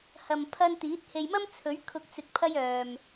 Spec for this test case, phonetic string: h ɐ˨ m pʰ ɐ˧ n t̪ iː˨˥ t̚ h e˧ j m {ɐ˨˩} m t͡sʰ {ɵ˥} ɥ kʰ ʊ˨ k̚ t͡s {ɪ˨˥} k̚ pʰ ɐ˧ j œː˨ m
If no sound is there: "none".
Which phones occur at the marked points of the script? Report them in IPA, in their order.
ɐ˥, ɵ˨˥, ɪ˨

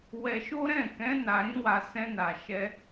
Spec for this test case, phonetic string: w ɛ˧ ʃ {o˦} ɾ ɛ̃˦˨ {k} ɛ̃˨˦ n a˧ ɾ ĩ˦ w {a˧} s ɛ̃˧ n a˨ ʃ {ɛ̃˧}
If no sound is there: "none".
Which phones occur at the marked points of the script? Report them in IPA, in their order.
o˦, k, a˧, ɛ˧

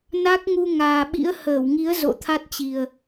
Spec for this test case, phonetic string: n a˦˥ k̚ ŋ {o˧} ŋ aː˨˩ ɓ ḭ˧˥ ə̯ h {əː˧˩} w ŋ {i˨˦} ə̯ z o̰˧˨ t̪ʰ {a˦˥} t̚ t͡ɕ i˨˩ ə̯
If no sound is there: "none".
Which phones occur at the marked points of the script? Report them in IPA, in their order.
u˧, əː˧˩, i˨˦, a˦˥

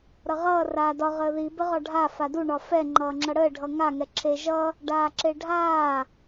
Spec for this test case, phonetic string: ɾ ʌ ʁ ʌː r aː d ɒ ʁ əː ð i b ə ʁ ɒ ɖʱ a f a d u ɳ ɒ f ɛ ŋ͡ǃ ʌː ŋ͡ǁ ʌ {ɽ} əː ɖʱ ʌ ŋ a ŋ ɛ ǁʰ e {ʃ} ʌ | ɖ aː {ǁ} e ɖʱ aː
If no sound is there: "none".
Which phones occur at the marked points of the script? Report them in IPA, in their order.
ɽ, ʒ, ǁ

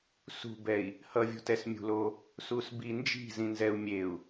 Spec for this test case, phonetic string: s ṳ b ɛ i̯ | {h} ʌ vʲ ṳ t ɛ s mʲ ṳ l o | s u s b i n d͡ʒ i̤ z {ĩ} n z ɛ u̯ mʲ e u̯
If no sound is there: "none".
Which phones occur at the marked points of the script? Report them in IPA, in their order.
h, ĩ

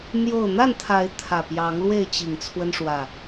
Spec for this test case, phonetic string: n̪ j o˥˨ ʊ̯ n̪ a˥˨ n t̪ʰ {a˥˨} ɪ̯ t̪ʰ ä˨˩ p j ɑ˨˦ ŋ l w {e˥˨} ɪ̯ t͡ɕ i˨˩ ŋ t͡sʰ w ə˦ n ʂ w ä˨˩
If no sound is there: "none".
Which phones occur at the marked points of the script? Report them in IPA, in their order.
a˨˦, e˥˨

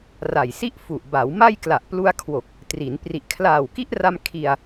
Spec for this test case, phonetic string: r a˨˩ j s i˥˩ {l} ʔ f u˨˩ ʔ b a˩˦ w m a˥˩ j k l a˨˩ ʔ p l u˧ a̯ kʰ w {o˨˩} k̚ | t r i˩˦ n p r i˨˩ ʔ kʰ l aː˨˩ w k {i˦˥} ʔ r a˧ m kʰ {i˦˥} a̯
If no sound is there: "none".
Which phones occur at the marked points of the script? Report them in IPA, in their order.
none, o˨˩, i˦˥, i˧

